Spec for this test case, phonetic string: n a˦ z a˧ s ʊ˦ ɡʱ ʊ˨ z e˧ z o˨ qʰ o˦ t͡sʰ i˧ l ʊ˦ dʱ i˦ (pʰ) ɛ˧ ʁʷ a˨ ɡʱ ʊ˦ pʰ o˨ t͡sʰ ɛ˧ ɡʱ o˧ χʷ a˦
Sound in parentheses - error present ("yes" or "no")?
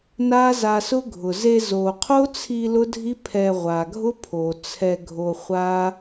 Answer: no